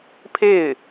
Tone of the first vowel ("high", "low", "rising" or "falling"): falling